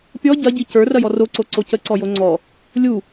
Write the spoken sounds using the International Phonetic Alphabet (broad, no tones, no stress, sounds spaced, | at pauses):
pʲ ɔ ɟ ɐ ɟ i c ə˞ r ɐ j ɔ r o ǀ o ǀ o c ə ǀ ɔ j o ŋ͡ǀ ɔ | lʲ u